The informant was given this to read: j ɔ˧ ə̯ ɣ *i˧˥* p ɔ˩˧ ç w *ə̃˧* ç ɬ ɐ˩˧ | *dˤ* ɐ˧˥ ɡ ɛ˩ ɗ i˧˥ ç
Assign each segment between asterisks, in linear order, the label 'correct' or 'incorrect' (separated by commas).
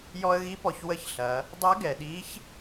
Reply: correct, incorrect, correct